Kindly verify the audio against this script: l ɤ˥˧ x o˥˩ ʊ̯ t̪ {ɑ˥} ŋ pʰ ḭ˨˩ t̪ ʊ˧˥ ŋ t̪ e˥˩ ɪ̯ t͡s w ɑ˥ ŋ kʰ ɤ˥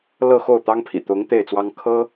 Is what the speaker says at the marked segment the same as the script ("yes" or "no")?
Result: yes